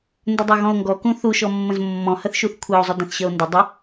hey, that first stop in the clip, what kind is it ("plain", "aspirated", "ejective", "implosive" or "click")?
plain